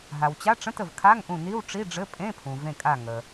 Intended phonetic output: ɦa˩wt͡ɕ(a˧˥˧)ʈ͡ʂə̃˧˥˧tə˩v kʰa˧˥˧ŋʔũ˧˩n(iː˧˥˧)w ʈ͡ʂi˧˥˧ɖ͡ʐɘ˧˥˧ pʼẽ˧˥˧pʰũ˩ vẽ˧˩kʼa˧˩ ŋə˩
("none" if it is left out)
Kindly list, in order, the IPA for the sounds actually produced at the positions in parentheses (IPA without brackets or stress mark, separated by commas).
a˧˥˧, i˧˥˧